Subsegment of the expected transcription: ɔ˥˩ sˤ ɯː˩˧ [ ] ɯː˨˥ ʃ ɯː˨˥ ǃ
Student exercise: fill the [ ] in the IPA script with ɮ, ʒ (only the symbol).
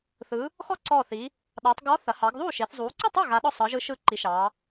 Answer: ʒ